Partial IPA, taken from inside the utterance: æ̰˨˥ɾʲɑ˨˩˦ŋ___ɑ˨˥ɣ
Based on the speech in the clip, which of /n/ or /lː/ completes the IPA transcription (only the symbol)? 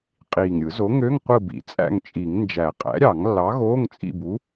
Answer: lː